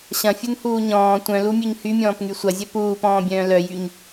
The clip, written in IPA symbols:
ɕɐ̃fʲunhuː ɲɔ̃ː tʷœ̃lumʲøɲ hymʲɔ̃ːpŋy sʷɐzʲœ puːpɔ̃ːbʲœ̃ː lœjyɲ

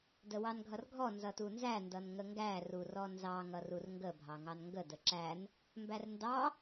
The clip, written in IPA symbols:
dəwɑnɡʱʌrɡʱɔ nzʌtunzæ ndʌnŋəŋɡæ rurɔnzɑ ŋʌrurŋɡə bʱɑŋɑnŋɡə dəǁæn | mbærndɑ

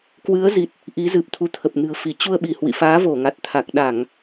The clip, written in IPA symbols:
kwɨ˨˦ə̯zi˨˩t̚ | ʔi˨˦zɨ˨˩p̚t̪ʰu˨˦t̪ʰə˨˩p̚ nɨ̤˨˩ə̯fi˧˩ t͡ɕu˧ə̯ɓi˧˩hwḭ˧˨faː˨˦ vo˧˩ŋa˨˩t̚t̪ʰa˨˩k̚ ɗa˧˩˨ŋ

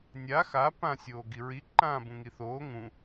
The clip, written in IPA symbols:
nʲa xa pã sʲoːɡiɹi ǃãːbũŋiθoː ŋũ

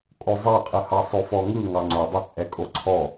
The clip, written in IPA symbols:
kʼozˤɛqʼɯhɑ sˤofɔŋɯ ŋɑŋ͡ǀodˤɯ t͡sʼɛkʼoǀʰɔ

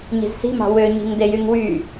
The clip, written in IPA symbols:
ɲi̤zsi̤mɑ̤ wøɲi̤ŋde jyŋwy

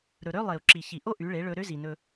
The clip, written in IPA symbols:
ɾɵ˨ɾø˦ lˠe˨u̯ǁi˨ çi˨ʔo˦ ʔy˨˦ɭe˨˦ ɭɵ˧ɾø˦zi˨nɵ˧

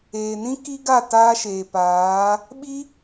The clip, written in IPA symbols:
eː˨nĩ˦ ki˦ɡa˦˨ taː˦ʃeː˨paː˨˦ | ɓi˦

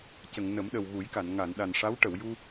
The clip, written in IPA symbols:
cə˨˩˨ŋ nə˨˩˦mɗə˨˩wɣu˨˩˦jka˨˩˨n ŋa˨˩˨nɗa˨˩nʂa˧˥w ʈə˨˩˨wju˧

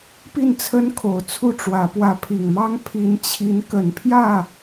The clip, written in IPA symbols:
pi˥˩nt͡sʰə˥nkʰo˨˩ʊ̯ t͡sʰu˥˩ʈ͡ʂwä˧˥ pwä˧˥pʰi˨˩ŋmɑ˥ŋ pʰi˧˥nt͡ɕʰi˧˥n kə˨˩npʰjä˥˩

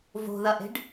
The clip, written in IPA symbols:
vo̤ðɐʔe̤ɖ

